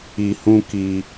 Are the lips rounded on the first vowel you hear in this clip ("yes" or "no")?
no